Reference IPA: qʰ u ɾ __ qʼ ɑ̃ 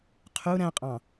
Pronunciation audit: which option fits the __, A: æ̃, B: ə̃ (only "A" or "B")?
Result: A